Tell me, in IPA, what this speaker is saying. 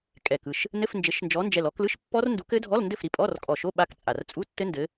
kʼ ɛ˨˩ k ɯ˥˩ ʃ | n ɘ˧˥˧ f n d͡ʒ ɘ˨˦ ʃ n d͡ʒ ɔ˨˦ n d͡ʒ ɛ˨˩ l ɔ˨˦ k l ɯ˧˥˧ ʃ pː ɔ˦˥ r n d u˨˦ k ɘ˦˥ dʱ ɔ˧˥˧ l n d ɘ˥˩ f ɾ i˥˩ pʼ ɔ˧˥˧ r kʼ ɔ˨˩ ʃ o˧˥˧ ɓ a˦˥ k t͡sʼ a˨˩ r t͡sʼ u˧˥˧ tː ɘ˦˥ n d ɘ˨˦

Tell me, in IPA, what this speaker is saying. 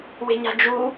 w e̤ ɲ a̤ d͡ʒ u

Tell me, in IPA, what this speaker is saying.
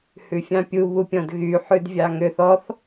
h ʉ fʲ ɑ̃ pʲ u β u pʲ ɔ̃ d ɣ y ħ ʉ d vʲ ɑ ŋ ø θ ɔ θ

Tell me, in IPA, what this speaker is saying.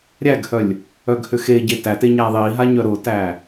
ɾʲ æ ɡ h œ lʲ | œ ɡ h ʏ x e ɟ e t æ t e ɲ æ ðˤ i ɦ a ɲ œ ɾ ʊ t æ

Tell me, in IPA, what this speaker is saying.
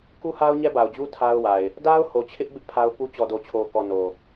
k u˦ h a˦ ʊ̯ ɲ ɛ˦ b a˨ ʊ̯ d͡ʑ u˦ tʰ a˦ ʊ̯ w a˨ ɪ̯ | d a˦ ʊ̯ h o˨ t͡ɕʰ ɪ˦ ʔ b ɪ˦ ʔ pʰ a˦ ʊ̯ p u˦ t͡ɕ ɔ˨ d o˨ t͡ɕʰ o˨ k ɔ˨ n o˨

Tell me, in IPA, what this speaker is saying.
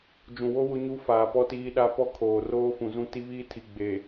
d͡ʒ ũ˨ w o˦ w ʊ˦ ɲ u˦ f aː˨ p ɔ˦ t iː˦ ɗ a˦ p ɔ˦ kʰ oː˨ r oː˦ f ũ˨ z ũ˦ t i˦ β iː˦ tʰ i˨ ɡ͡b e˨

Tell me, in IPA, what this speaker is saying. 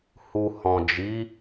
h u˨ h ɔ̃˨ d͡ʒ i˨˦

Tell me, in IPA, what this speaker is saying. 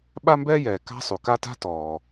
ɓ a˥ m b ɛː˥ j ɛː˩ k a̤˥ sˤ u˩ k a˥ t a̤˥ t ɔː˩

